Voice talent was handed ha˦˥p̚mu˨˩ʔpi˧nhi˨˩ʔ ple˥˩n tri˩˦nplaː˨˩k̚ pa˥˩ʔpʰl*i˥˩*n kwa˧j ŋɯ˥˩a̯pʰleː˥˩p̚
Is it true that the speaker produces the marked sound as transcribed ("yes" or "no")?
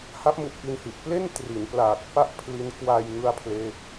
no